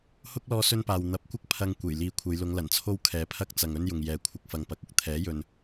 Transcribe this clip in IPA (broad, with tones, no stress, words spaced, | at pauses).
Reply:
hʊ˥k̚lɔː˧ sɵ˥npaː˨w n̪ɐ˨˥p̚kʷɐ˥k̚ pʰɐ˧ŋ kʷe˨˩jliː˨˧kʷʰɐ˨˧jlʊ˨˧ŋ lɐ˨˩nt͡sʰo˥w kʰɛː˨pʰɐ˥k̚t͡sɐ˨ŋɵ˥n jʊ˨ŋjɛː˨˧ kʷʰɪ˧k̚fɐ˨ŋpɐ˨˥k̚ʊ˥k̚ t̪ʰɛː˨˥jɵ˨n